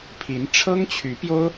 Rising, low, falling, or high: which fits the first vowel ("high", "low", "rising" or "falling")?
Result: rising